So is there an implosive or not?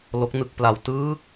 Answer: no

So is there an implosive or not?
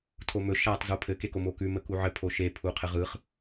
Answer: no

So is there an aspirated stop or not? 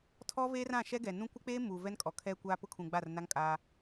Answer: yes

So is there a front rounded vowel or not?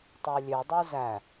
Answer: yes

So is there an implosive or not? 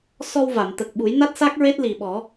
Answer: yes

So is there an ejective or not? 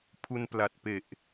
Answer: no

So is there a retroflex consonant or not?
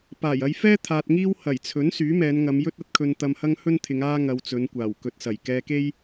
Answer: no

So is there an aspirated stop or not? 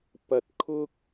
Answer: yes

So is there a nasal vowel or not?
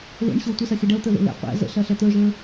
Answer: no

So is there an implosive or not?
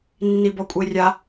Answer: no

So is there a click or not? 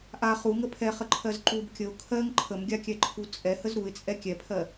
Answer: yes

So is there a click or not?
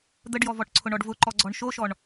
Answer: yes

